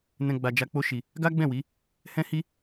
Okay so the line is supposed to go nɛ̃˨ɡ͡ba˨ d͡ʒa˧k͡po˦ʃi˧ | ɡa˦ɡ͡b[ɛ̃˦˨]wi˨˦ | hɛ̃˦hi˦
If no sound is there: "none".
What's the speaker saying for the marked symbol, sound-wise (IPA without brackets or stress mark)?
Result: ɛ̃˦˨